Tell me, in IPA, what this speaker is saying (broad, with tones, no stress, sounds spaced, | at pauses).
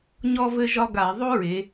ɲ ɔ˥ v ɘ˥ ʒ ɒ˥ ɡ a˧˩˧ ðˤ o˥ ɹ e˩˧